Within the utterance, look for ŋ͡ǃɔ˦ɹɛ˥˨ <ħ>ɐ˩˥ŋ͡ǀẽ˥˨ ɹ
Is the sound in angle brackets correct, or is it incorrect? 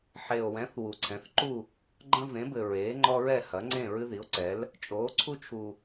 incorrect